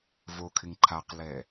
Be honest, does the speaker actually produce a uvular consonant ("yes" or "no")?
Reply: yes